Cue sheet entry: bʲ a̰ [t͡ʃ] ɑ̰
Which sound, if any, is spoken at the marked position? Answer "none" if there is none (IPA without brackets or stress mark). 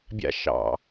ʃ